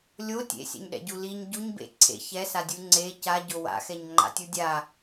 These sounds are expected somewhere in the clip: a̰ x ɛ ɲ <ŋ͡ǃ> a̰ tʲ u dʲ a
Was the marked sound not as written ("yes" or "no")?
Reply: no